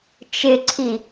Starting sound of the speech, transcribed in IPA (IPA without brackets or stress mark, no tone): t͡ʃ